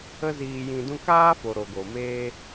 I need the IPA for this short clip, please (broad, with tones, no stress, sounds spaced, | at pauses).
ə˦ z iː˧ j ĩ˧ d ũ˦ k aː˦ f o˨ ɾ o˨ ɡ o˨ m eː˦